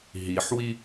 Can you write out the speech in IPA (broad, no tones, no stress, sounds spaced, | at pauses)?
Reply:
ɦ i ħ w i